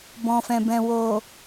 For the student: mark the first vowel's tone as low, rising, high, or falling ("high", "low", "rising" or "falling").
low